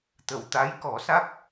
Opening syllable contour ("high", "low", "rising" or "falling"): low